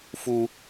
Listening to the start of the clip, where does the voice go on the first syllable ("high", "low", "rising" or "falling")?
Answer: high